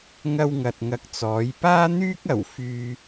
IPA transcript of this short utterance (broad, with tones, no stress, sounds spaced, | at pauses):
ŋ ɐ˥ w ŋ ɐ˨ t̚ ŋ ɐ˧ k̚ t͡s ɔː˨˥ j p aː˥ n̪ yː˥ k̚ ɐ˨˩ w f yː˧